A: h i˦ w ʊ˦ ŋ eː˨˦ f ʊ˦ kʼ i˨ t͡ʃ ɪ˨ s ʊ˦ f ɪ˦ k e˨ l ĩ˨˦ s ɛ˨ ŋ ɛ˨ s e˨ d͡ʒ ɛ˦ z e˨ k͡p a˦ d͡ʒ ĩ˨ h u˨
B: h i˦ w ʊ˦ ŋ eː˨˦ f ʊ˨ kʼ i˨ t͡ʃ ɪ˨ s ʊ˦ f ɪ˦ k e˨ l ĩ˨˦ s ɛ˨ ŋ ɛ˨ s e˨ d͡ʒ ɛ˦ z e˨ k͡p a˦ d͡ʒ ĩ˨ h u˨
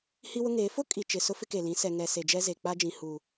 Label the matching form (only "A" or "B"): A